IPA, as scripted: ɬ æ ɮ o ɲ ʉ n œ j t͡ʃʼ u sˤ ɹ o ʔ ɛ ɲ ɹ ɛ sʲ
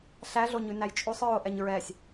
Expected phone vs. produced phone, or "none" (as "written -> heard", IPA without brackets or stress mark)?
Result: œ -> æ